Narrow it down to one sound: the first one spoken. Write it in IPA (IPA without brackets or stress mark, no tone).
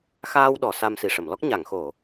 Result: x